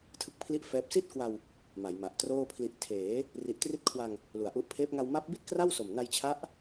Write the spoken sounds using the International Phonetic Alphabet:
tʰ ɯ˥˩ k̚ pʰ l i˥˩ ʔ f ɛː˦˥ p̚ s i˥˩ t̚ k w a˧ w | m a˩˦ j m a˨˩ ʔ t r oː˥˩ pʰ l i˦˥ ʔ tʰ eː˩˦ | r i˨˩ ʔ t r i˦˥ t̚ kʰ w a˧ ŋ | l u˨˩ a̯ ʔ u˦˥ ʔ pʰ eː˦˥ p̚ ŋ a˧ w m a˦˥ p̚ b i˥˩ t̚ k r a˥˩ w s o˨˩ m n a˧ j t͡ɕʰ a˦˥ ʔ

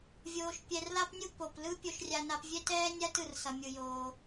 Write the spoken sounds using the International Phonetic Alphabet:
vʲ oː˧ ʃ pʲ ɛ˧ r l a˥ p nʲ u˥ p o˩ p l ɯ˥ pʲ o˧ ʃ rʲ a˧ n a˧ p vʲ ɛ˥ t ɛː˥ nʲ a˥ t ɯ˩ r s ʌ˩ mʲ ɯ˩ j oː˩

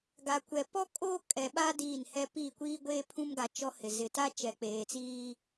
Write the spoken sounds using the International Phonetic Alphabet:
ɡ a˨ kʷ ɛ˨ p ɔ˦ kʼ oː˦ kʼ ɛ˨ ɓ a˦ d iː˦˨ n h ɛ˦ p iː˦˨ kʷ iː˦ ɡʷ eː˦ pʰ ũ˦ m ɡ a˨ t͡ʃ ɔ˦ h ɪ˨ z ɪ˨ t a˦ t͡ʃ ɛ˨ k͡p eː˨ t͡s iː˦

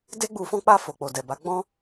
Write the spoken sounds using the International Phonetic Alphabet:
d e˦ ɡ͡b u˧ f ɔ̃˧ k͡p a˧ f o˨ k͡p o˨ d ɛ˨ b a˨˦ ɡ͡b ɔ̃˦

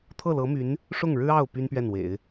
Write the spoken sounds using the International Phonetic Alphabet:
t̪ʰ ɤ˥˩ l ɤ˧˥ m y˧˥ n | ʂ ʊ˥˩ ŋ ɻ ɻ̩˥ ɑ˥˩ ʊ̯ p y˥ n p ɥ ɛ˥˩ n w ḛ˨˩˦ ɪ̯

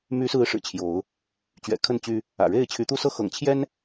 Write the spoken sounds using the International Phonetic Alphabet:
m y˨˦ s ɹ̩˨˦ ʂ ɻ̩˨˩ t͡ɕʰ j o˨˦ ʊ̯ | t͡ɕ ɥ ɛ̰˨˩ kʰ ə˥˨ n t͡ɕ y˦ | ä̰˨˩ ɻ e˥˨ ɪ̯ t͡ɕʰ y˨˦ t̪ u˦ s ɤ˥˨ x ɤ̰˨˩ ŋ t͡ɕʰ j ɛ˦ n

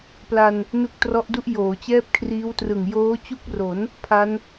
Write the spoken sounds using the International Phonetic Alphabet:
p l a˧ n | n u˦˥ k̚ t r ɔ˦˥ ʔ d u˥˩ ʔ j oː˩˦ t͡ɕ ɛː˥˩ p̚ kʰ r iː˦˥ w t r ɯ˨˩ ŋ j oː˦˥ t͡ɕ u˥˩ k̚ r o˩˦ n | pʰ a˦˥ n

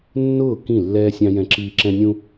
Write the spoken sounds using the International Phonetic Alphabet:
nː ʊː˦˨ k ĩ˦˨ lː ɛː˦ sʲ ɑ̃˦ j ɛ̃˦ ǁ iː˦ ǁ ɛ̃˦ nʲ ũ˦

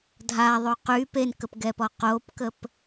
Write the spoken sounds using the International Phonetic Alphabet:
dʱ a ðˤ o q y p e n k ə p ɡ ɛ p ɔ q o p k ə p

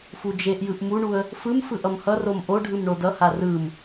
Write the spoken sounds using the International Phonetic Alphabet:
f u d͡ʒ e ʔ j ɯ ʔ m u ɳ u ə̯ | f ɯ m f ɯ ʔ ʌ m h ʌ r o m ʔ o ɖʱ ɯ m ɳ o d ʌ h a r ɯ m

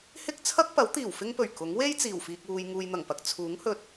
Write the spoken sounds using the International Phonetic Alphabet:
h ɪ˥ k̚ t͡sʰ ɐ˥ k̚ p ɐ˨˥ w t̪ iː˨˩ w f ɪ˥ ŋ p ɵ˨˩ ɥ k ʊ˨˥ ŋ w e˥ j t͡s iː˨˩ w f iː˨ k̚ w uː˨ j ŋ uː˨ j n̪ ɐ˨˩ ŋ p ɐ˨ k̚ t͡sʰ uː˨˥ ŋ h ɵ˧ t̚

